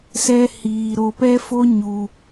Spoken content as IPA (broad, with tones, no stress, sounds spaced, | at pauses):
s ɛ˦ h iː˧ ɾ o˧ p ɛ˦ f o˦ ɲ u˧